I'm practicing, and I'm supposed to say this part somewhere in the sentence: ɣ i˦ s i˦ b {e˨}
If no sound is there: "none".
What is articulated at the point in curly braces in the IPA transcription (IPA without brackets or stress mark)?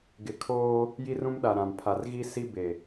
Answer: e˨